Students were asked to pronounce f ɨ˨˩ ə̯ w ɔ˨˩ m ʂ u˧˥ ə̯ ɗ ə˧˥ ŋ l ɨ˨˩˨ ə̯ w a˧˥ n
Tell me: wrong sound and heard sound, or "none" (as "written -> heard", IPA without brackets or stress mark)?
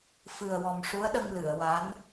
ə˧˥ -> ə˧